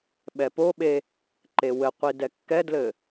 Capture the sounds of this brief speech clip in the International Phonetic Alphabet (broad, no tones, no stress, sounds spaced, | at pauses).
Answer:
ɓ ɛ p o ɓ e | ǃ e w ɘ qʷ i d ɛ kː ɛ d l ɘ